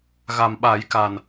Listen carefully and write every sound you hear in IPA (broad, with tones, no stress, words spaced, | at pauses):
ɣa˨˩mɓa˨˩˦jka˨˩n